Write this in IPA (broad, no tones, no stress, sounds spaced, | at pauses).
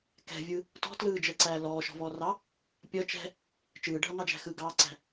k ɛ̤ vʲ ɯ | t ɔ̤ t l ɯː d͡ʒ əː ǀ æː l ɔː ʃ ɔ̤ v ɔː r ɑ | pʲ ʌ t͡ʃ ɛ̤ | t͡ʃ ɯː ɖʱ ʌ ŋ ɑ d͡ʒ æ̤ x ɯ ɡ ɑː ǀ æ̤